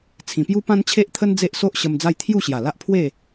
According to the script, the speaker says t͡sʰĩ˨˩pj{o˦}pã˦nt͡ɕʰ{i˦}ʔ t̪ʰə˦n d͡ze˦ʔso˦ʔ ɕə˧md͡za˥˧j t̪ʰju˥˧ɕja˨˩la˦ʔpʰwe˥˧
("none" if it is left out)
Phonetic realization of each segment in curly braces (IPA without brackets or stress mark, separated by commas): u˦, e˦